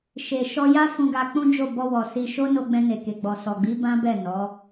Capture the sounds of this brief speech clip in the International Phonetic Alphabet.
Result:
ʃe˨ʃɔ˧ja˦ fũ˧ɡa˧k͡pũ˦d͡ʒo˦˨ bɔ˧wɔ˨ si˧ ʃo˦no˧ ɡ͡bɛ̃˧ne˨ke˨ ɡ͡bɔ˨sɔ˨ɡ͡bi˨˦ bã˦bɛ˦˨nɔ˨˦

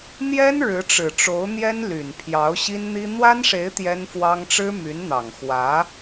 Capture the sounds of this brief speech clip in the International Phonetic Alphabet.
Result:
n̪jɛ˥n ɻɻ̩˧˥ʈ͡ʂɻ̩˨˩ʈ͡ʂo˧˥ʊ̯n̪jɛ˥n ly˨˩n pʰjɑ˧˥ʊ̯ɕi˥nn̪i˥ n̪wa˥nʂe˧˥ɪ̯ t̪jɛ˥nfwɑ˥ŋ ʈ͡ʂɻ̩˥my˧˥nn̪ɑ˨˩ŋ xwä˧˥

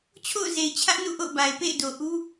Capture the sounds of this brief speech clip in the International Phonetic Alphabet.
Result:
t͡ɕʰo̰˦˨ʊ̯ze˨ɪ̯t͡ɕʰä˦ʔ nṵ˦˨ʔo̰˦˨ʊ̯ba˨ɪ̯ pḛ˦˨ɪ̯do˨ ʔu˦

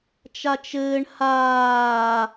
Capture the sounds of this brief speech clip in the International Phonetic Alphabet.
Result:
t͡ʃat͡ʃɘːɳ haː

